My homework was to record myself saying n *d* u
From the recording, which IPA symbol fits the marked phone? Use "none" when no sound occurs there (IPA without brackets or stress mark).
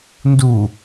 d